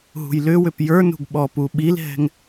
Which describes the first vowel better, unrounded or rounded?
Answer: rounded